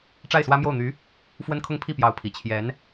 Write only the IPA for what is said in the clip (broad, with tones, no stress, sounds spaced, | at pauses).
ʈ͡ʂ a˥˩ ɪ̯ s w ä˥ m j o˥˩ ʊ̯ n̪ y˧˥ | f w ə˥ n kʰ ʊ˥˧ ŋ pʰ i˥˩ p j ɑ˧˥ ʊ̯ pʰ i˨˩ t͡ɕʰ j ɛ˧˥ n